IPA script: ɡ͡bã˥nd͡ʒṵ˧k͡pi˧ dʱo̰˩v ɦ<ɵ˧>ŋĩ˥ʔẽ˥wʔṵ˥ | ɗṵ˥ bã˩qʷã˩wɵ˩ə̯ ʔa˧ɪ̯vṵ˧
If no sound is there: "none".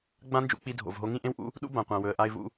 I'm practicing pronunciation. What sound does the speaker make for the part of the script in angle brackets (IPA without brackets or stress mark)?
o˧